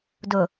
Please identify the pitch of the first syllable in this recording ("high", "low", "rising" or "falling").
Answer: low